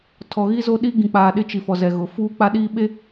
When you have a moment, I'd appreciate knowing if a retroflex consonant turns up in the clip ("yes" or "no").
no